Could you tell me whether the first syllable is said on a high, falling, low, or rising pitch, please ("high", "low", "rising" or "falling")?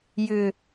low